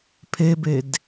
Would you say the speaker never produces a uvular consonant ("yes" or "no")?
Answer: yes